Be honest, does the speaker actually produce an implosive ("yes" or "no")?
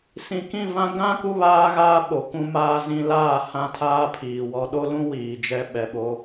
yes